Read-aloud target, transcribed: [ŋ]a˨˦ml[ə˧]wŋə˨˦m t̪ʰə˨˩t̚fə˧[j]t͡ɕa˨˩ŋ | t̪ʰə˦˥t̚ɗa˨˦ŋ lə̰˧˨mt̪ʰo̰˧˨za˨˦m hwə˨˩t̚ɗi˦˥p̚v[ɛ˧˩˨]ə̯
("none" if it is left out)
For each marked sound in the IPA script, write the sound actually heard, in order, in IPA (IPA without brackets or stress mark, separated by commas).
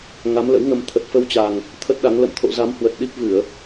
ŋ, ə̰˧˥, w, ɨ˧˩˨